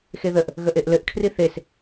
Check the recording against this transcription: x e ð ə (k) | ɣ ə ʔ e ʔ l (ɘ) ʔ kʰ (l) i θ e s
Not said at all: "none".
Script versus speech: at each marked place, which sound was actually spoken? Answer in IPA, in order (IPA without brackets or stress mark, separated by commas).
ʔ, ɘ, r